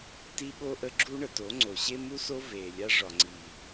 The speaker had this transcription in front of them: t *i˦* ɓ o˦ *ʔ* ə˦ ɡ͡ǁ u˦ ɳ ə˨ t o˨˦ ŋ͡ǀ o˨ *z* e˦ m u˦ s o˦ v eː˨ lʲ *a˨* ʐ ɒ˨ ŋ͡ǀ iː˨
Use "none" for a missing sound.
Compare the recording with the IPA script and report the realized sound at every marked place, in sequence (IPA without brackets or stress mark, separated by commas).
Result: i˦, ʔ, ɕ, a˦